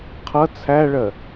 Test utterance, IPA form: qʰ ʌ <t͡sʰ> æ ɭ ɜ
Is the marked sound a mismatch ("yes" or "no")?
no